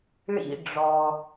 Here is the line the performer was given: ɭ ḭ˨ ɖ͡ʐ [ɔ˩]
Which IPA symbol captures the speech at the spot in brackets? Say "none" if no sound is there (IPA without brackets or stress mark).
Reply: ɔ˩